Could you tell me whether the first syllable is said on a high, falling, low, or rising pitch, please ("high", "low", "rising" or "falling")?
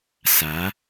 rising